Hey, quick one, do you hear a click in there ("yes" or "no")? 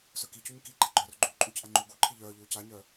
yes